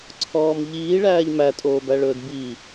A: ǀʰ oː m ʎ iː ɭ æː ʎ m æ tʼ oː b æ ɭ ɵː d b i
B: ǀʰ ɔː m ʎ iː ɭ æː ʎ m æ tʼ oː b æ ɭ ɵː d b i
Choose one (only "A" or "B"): B